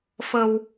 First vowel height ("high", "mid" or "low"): mid